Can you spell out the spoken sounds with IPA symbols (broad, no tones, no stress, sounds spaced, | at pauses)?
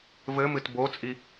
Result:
v ɘ m ɨ t b o t͡sʼ i